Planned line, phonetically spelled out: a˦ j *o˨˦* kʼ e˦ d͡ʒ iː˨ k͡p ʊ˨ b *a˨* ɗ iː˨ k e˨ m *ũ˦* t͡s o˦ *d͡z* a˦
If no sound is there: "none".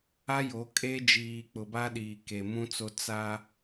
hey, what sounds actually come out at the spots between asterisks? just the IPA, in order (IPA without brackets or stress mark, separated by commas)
o˨˦, a˦, ũ˦, t͡s